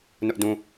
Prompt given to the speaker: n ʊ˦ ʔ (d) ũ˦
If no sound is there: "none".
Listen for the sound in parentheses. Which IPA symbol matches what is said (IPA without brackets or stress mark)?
d